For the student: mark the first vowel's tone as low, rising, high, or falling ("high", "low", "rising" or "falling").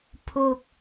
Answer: low